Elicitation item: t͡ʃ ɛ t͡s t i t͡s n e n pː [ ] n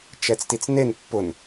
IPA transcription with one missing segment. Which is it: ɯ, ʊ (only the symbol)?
ʊ